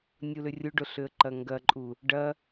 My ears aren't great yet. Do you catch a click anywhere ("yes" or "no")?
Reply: yes